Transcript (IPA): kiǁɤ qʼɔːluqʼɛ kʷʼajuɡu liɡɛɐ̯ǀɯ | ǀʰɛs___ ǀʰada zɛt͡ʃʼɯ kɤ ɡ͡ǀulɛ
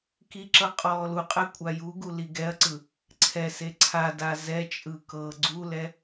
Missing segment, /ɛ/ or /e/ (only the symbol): e